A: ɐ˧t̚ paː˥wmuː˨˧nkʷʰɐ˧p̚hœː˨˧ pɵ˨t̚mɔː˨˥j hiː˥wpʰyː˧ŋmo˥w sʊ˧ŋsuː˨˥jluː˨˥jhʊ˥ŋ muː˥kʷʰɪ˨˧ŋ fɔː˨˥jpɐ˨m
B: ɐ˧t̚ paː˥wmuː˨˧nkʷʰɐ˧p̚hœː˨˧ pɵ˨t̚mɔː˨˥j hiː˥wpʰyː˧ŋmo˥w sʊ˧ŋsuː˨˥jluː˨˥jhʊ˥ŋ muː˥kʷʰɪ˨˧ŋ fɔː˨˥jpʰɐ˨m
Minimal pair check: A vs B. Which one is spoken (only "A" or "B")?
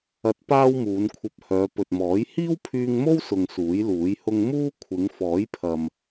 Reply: B